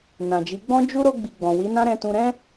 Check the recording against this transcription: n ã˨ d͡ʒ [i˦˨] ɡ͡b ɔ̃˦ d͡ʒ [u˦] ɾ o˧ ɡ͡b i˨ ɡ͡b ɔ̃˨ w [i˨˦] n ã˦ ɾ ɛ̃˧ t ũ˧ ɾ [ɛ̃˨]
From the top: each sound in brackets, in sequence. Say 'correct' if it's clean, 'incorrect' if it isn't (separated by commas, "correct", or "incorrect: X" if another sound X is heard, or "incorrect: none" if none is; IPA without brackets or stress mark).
incorrect: i˨˦, correct, correct, incorrect: ɛ̃˦